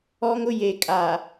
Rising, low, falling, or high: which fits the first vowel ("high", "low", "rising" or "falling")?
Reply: high